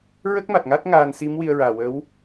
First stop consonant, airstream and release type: plain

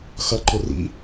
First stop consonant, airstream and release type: click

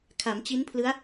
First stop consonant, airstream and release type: aspirated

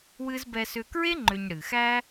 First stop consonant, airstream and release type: plain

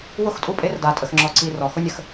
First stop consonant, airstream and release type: ejective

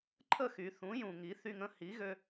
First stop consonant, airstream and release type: click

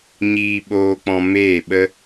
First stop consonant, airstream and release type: implosive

